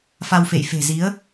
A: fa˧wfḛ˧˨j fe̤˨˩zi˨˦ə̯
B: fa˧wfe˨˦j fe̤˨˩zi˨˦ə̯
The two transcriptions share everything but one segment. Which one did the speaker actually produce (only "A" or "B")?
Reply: A